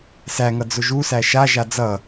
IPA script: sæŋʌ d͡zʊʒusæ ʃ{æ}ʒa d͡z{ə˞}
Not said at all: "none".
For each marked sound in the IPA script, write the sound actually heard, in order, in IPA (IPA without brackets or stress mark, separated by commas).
a, ʌ